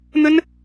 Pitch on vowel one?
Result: high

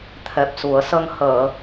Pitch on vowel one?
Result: low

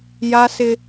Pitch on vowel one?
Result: high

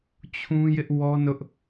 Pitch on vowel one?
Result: high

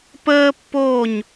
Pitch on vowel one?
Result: high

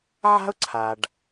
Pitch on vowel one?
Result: high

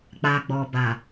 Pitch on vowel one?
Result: low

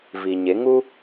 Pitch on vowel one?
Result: low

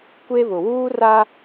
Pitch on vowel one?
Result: high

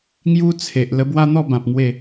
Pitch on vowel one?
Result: high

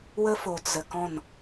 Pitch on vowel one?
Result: high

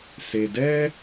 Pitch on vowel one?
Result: low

